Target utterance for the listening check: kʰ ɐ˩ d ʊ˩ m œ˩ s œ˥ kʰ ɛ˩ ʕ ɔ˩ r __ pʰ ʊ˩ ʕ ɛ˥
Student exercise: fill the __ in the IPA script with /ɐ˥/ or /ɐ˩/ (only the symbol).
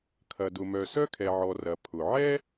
ɐ˩